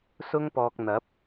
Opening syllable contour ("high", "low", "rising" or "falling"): high